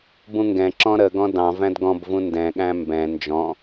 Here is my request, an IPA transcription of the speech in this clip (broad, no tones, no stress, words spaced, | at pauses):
bũŋɡɛ̃ǁɔ̃ ɾəɡɔ̃ dɑ̃ væ̃dɡɔ̃bvũ ndɛ̃ɠæ̃ mbɛ̃ nd͡ʒɔ̃